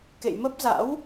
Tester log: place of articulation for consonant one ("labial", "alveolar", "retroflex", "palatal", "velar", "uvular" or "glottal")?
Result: velar